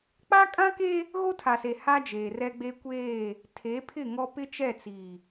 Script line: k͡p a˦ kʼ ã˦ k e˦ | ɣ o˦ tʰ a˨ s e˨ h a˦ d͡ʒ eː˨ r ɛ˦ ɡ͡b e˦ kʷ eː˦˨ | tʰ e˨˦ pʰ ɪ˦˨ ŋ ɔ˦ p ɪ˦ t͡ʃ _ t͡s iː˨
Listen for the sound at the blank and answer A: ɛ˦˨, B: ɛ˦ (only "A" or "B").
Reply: A